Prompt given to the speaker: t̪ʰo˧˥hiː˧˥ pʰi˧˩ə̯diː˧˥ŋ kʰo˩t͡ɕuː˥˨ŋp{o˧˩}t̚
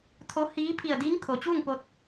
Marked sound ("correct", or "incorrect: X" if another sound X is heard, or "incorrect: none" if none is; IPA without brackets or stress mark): incorrect: o˧